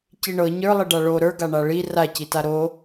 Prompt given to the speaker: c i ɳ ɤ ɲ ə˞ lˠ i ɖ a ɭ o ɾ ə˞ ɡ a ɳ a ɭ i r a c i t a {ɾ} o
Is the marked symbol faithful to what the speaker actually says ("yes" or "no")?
yes